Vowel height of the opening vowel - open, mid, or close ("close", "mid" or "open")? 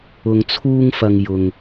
close